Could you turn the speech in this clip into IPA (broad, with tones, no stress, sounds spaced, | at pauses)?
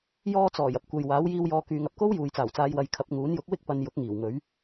j ɔː˧ t͡s ɔː˨˩ j ɐ˨ p̚ kʷ ɐ˨ j w aː˨˥ w j iː˧ w j ɔː˧ k yː˨ ŋ ɐ˨ p̚ k o˥ w j uː˨ j t͡s aː˨˩ w t͡s aː˨˧ j w ɐ˨˧ j kʰ ɐ˨˥ p̚ ŋ uː˨˥ n j ʊ˨˥ k̚ w ɪ˥ k̚ p ɐ˨˧ n j ʊ˨˥ k̚ ŋ iː˨˩ w ŋ ɵ˨˥ ɥ